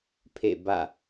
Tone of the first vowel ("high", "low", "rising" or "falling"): falling